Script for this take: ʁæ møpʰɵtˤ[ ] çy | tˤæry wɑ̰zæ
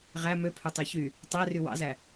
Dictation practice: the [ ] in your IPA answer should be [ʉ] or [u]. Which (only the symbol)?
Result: ʉ